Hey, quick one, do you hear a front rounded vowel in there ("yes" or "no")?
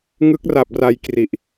no